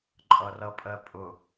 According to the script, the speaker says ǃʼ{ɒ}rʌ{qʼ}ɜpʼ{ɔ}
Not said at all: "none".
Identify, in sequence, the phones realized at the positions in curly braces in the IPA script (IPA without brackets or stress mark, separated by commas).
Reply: ʌ, pʼ, ʊ